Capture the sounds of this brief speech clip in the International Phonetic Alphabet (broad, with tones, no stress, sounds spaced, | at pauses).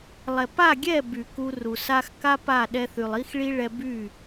lˠ ɛ˨ p a˦˨ ɡʲ ɛ˦˨ b y˨ k u˧ r u˨ s a˧ x k a˦ p a˦˨ ɗ ɛ˧ θ y˨ lˠ i˦ x ɭ i˦ ɭ ɛ˧ b y˦˨